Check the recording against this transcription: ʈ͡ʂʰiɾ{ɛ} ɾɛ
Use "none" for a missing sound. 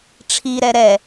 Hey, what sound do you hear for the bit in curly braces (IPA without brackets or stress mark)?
ɛ